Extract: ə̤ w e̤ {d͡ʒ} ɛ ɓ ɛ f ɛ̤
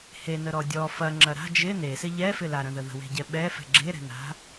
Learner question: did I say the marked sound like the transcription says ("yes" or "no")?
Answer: no